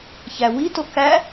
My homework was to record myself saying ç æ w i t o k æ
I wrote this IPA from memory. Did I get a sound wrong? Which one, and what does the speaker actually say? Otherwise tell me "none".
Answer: none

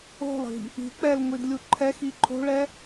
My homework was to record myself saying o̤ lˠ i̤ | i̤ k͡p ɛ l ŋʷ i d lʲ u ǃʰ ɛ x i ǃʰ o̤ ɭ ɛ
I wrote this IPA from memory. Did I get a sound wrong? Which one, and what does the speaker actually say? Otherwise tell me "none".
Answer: none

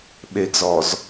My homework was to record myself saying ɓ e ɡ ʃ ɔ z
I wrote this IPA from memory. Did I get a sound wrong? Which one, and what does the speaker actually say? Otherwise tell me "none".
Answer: ʃ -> z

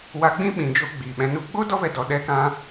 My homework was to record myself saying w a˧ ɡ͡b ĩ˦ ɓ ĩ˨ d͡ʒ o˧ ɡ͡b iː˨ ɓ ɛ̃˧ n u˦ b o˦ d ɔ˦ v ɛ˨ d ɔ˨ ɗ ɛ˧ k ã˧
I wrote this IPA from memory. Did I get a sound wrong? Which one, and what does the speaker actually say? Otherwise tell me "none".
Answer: b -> ɡ͡b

